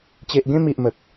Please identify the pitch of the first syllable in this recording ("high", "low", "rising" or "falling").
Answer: low